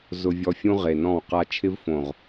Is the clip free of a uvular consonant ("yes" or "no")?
no